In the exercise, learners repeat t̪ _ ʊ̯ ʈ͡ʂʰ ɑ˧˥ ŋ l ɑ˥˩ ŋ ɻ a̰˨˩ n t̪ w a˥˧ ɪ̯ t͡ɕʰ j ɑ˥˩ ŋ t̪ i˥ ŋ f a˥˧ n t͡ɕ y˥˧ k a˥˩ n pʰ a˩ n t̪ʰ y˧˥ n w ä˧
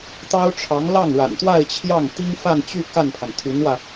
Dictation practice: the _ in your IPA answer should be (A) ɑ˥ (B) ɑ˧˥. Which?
A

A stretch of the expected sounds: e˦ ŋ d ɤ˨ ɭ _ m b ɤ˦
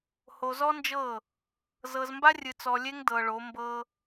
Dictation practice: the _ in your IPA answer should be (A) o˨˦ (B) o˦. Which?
A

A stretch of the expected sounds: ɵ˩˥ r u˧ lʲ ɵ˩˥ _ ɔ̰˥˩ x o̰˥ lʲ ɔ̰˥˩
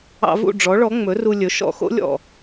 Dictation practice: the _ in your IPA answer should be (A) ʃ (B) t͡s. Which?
A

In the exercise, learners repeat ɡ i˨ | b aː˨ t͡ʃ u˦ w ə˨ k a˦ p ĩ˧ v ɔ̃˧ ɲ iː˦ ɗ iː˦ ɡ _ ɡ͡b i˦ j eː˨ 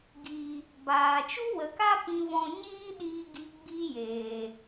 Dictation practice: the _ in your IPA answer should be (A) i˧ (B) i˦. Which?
B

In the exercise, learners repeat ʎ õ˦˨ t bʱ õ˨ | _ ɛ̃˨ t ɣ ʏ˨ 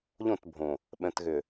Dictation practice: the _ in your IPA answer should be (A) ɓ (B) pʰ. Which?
A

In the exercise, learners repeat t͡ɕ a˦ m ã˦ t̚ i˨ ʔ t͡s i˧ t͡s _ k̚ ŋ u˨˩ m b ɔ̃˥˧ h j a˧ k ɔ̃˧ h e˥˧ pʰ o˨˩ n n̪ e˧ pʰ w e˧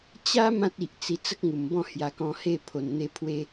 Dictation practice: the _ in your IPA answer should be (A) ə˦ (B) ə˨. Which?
A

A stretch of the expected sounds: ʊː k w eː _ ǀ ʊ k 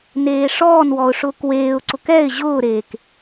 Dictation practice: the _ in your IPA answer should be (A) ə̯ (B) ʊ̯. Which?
B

